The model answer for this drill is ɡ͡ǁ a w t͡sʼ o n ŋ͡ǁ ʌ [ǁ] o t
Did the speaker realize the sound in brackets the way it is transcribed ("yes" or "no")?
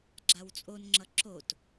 yes